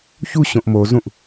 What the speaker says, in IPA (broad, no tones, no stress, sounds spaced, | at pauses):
ç u ɕ õ ʔ m o z ũ ʔ